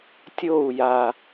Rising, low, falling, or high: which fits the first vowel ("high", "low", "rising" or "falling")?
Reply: falling